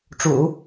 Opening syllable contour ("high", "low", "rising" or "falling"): low